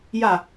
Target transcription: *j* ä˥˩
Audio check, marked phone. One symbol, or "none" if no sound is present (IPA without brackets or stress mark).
j